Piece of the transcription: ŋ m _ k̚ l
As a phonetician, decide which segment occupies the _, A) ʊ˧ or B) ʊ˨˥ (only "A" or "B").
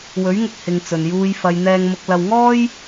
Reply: A